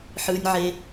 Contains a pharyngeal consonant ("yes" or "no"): yes